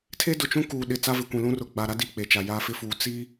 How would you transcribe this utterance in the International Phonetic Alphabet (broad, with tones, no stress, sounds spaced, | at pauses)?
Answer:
tʰ e˦ d ʊ˨ t͡ʃ ũ˦ k uː˨ ɗ ɪ˨ t͡s a˦ v ɪ˨ kʷ ĩ˨ l ũ˦ r ʊ˨ ɡ͡b a˨ ɾ a˦ d i˦˨ k͡p e˨ t͡ʃ a˨ j a˦ f ɪ˦ f uː˨ t͡s i˦